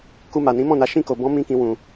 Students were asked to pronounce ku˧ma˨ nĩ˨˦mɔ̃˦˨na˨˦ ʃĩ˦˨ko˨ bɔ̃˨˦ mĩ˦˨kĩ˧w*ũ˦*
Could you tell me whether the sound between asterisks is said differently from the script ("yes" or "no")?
yes